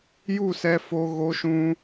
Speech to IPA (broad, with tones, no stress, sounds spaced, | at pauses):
j u˦˨ s ɛ˧ f o˧ ɣ o˧ ʃ ũ˧